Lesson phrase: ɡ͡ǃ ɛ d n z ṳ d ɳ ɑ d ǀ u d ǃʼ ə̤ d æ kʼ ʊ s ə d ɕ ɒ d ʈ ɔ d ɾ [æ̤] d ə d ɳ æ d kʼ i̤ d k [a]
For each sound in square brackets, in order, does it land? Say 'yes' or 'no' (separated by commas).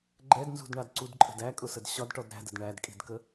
yes, no